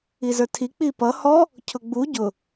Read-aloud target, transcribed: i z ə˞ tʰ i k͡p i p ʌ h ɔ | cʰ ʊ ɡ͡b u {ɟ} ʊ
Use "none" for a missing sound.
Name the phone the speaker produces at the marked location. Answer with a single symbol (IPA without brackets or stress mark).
ɟ